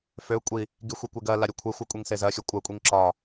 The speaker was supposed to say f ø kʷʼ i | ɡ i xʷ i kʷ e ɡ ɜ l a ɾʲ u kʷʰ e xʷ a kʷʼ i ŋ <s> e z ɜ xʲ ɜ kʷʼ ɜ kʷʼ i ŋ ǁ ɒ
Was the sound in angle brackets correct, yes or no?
yes